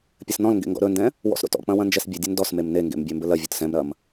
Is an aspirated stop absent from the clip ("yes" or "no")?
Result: yes